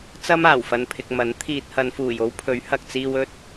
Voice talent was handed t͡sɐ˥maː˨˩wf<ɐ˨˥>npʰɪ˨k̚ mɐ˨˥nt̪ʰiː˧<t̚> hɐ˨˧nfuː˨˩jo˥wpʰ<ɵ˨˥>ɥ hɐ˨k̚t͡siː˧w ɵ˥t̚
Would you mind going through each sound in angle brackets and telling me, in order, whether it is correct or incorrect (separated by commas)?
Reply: incorrect, correct, correct